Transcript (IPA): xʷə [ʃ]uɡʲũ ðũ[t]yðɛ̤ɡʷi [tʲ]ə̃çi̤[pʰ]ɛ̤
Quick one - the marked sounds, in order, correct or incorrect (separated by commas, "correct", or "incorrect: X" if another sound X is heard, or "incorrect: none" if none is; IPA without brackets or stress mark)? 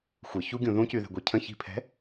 incorrect: ç, incorrect: c, incorrect: cʰ, correct